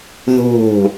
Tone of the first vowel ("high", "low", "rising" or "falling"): falling